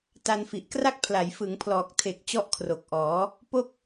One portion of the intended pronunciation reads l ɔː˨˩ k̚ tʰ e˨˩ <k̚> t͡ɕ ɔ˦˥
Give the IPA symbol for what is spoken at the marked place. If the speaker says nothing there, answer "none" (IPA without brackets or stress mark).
k̚